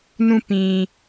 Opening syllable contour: falling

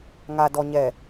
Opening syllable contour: low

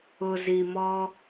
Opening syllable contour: low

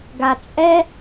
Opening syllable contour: low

